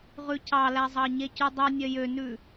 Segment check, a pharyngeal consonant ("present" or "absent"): absent